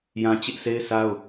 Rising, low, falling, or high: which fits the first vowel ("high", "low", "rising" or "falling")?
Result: high